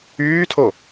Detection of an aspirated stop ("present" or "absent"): present